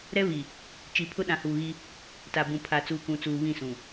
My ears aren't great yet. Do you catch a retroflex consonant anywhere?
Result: no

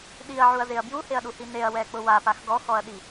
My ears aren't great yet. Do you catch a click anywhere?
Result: no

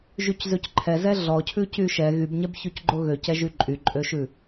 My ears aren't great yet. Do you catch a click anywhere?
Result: yes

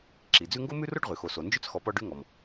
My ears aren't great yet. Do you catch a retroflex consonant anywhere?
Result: yes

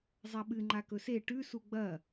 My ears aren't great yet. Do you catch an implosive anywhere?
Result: yes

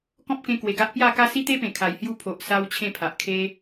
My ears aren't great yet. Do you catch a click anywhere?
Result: no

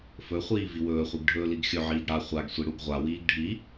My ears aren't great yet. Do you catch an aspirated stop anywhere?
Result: no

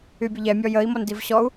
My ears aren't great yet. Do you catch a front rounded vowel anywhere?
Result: yes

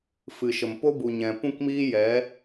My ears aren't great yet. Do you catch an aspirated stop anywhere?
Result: no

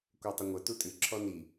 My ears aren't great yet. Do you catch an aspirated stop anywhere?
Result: yes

